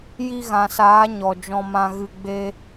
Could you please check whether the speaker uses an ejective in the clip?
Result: no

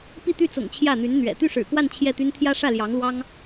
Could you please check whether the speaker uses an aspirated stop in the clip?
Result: yes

